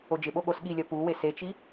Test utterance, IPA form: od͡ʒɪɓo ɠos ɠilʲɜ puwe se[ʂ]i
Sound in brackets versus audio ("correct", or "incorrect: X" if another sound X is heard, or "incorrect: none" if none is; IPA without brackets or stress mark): incorrect: t͡ʃ